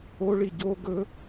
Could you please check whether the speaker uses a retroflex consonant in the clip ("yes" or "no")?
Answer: yes